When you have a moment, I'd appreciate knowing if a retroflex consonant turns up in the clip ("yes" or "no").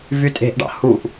yes